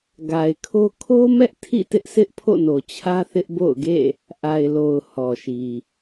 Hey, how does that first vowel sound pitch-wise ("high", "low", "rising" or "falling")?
low